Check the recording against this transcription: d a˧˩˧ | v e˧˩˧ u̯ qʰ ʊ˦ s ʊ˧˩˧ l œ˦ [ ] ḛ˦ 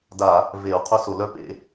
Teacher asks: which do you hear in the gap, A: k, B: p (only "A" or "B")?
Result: B